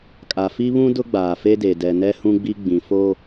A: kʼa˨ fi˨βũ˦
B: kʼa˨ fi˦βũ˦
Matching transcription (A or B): B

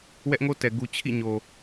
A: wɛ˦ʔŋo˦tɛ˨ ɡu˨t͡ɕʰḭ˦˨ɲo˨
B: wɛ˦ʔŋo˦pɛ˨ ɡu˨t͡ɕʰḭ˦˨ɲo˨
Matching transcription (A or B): A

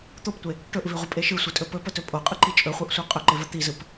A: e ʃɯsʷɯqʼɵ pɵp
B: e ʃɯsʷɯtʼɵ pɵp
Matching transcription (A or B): B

